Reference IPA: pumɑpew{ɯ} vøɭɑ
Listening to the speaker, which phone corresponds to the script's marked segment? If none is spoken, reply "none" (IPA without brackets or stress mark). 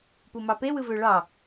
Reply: ɯ